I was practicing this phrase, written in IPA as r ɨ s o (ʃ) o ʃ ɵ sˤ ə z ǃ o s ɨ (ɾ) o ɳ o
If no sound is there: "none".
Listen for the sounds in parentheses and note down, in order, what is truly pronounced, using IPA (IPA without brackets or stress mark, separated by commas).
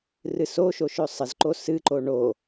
ʃ, ǃ